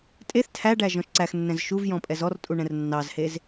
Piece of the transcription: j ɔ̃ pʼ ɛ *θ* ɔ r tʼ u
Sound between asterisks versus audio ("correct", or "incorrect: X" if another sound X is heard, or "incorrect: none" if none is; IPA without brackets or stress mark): incorrect: z